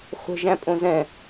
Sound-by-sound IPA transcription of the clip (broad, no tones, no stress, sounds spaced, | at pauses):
χʷ ə̤ ʒ æ̃ pʼ õ z ɛ̃